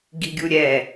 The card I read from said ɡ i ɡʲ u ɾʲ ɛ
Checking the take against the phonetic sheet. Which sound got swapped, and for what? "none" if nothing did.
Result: none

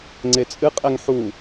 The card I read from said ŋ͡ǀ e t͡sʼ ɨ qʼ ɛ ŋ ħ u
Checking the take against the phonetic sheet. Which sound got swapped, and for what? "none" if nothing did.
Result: none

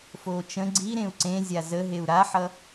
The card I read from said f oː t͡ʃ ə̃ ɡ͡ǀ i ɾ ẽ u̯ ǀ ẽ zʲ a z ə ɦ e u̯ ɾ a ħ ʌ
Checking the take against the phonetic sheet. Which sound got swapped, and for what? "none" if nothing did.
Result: none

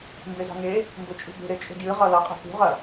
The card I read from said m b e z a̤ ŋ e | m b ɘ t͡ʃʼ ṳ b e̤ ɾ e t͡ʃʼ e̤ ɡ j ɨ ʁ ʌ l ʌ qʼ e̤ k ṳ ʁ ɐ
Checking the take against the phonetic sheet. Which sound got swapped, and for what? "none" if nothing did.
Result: none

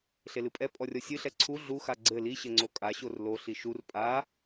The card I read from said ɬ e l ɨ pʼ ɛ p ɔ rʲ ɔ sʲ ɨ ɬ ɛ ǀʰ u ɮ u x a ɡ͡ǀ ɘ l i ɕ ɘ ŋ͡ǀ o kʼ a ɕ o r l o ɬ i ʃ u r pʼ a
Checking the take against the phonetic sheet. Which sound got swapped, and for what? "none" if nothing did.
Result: p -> pʼ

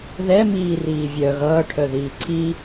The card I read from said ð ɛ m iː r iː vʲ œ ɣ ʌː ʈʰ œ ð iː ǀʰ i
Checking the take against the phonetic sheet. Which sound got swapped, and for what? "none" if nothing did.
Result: none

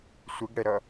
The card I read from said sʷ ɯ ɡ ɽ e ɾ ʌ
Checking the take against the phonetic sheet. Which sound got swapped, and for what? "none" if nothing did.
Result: e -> ɛ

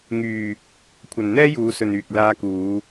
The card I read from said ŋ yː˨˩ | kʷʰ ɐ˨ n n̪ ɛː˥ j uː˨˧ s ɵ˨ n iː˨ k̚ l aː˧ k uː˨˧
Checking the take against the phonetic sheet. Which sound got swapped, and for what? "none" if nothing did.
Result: iː˨ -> yː˨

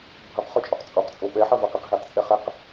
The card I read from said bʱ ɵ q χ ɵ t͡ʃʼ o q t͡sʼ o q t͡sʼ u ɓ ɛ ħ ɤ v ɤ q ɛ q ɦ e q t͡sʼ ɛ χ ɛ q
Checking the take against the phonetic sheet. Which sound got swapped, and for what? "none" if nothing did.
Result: u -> o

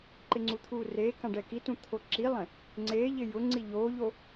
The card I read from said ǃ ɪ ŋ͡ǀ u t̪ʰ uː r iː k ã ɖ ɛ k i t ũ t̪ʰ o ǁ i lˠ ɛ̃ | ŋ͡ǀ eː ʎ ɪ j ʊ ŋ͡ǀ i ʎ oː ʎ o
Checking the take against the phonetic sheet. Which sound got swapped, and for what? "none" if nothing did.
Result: iː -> eː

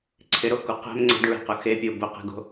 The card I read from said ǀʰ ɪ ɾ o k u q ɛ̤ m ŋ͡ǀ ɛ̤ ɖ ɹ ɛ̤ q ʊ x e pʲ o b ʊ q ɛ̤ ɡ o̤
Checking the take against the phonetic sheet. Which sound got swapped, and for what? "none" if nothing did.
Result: none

